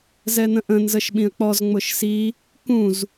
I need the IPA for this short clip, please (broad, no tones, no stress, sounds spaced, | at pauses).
z ɛ n̪ ə̃ ʔ ə̃ n z ə ʃ ɓ ĩ ə̯ k͡p ɔ z ŋ͡m ʊ ʃ s i | k ũ z